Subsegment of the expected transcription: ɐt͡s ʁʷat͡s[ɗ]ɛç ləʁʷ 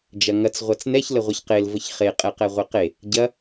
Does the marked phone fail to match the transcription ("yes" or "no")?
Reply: yes